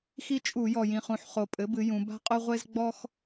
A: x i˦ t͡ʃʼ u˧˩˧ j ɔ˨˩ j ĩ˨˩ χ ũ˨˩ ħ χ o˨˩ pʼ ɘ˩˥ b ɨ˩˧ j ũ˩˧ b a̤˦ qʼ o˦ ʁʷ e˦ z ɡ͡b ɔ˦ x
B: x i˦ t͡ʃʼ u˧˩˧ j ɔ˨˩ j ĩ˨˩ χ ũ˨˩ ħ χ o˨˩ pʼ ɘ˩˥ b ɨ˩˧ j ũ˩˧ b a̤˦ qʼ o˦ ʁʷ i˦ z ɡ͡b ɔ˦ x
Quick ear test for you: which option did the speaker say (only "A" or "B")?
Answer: A